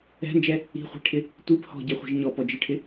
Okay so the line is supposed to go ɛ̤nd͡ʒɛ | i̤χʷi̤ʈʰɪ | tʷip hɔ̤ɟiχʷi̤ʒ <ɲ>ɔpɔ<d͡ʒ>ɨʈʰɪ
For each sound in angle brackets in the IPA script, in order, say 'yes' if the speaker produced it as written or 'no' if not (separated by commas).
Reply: yes, yes